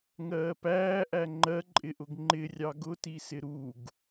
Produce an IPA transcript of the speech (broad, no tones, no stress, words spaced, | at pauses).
ŋɜːpæːʔæ ŋ͡ǃɜǃʼɪʔʊɡ ŋ͡ǃɪ rʲɑɡʊtisɪ ɾuɡ